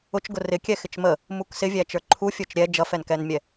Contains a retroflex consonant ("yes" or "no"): no